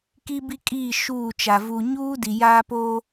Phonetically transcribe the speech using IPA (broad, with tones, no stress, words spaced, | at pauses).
ki˦bi˦kʼiː˦˨ ʃuː˦˨t͡ʃa˨ vu˨ɲuː˦ di˨jaː˦poː˦